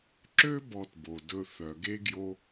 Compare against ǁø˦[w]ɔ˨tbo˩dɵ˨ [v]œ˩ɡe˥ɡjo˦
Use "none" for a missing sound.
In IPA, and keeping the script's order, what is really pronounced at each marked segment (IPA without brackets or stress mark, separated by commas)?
b, θ